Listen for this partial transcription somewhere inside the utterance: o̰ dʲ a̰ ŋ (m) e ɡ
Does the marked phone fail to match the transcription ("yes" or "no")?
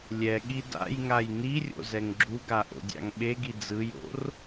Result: yes